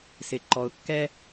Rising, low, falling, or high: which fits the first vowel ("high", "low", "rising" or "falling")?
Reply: low